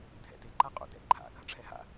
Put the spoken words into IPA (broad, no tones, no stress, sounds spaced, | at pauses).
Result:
dʱ ɛ̰ t ɪ ǃ a qʼ o̰ d ɛ̰ ǃʰ a̰ ɡʱ ɐ ʈ͡ʂʰ ɛ ɦ a̰